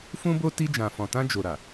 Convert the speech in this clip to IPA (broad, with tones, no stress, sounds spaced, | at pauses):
f ũ˦ b o˦ t i˧ d͡ʒ ã˨ f ɔ̃˨ t ã˧ d͡ʒ o˨ ɾ a˨